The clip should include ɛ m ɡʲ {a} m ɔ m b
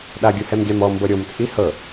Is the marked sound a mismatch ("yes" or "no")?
no